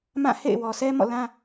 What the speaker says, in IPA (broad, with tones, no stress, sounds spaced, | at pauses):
m ã˦˨ h ḛ˦˨ ɪ̯ w ɔ˨ s ɛ˦ m ɔ̰˦˨ l ã˦